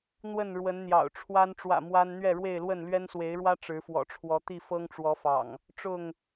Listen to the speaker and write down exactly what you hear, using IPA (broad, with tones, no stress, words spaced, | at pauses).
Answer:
n̪wə˥˨n ɻwə˨˦nn̪jɑ̰˨˩ʊ̯ʈ͡ʂʰwa˦n ʈ͡ʂwä̰˨˩ mwa˦n n̪ɥɛ˥˨ɻwe˥˨ɪ̯lwə˥˨n lɥɛ˦nswe˨˦ɪ̯ɻwä˦ ʈ͡ʂɻ̩˨˦fwɔ̰˨˩ʈ͡ʂʰwɔ˨˦t̪i˥˨ fɤ˦ŋʈ͡ʂwɔ˨˦fɑ̰˨˩ŋ | ʈ͡ʂʊ˥˨ŋ